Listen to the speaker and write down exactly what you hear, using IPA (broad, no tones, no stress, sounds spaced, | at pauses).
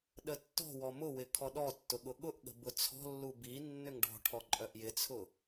ɗ ə tː ɔ̤ w ɔ m ʊ w ɪ kʰ ɔ ɗ ɔ tː ʊ ɠ ʊ ɠ ʊ ʔ ɠ ə̤ b ʊ t͡sʰ ɔ̤ lː u b i nː ʏ ŋ ɖ ɔ̤ ʈʰ ɔ ǃʼ œ ʔ j ɪ t͡sʰ ʊ